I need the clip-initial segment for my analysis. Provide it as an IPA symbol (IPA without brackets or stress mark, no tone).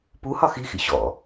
p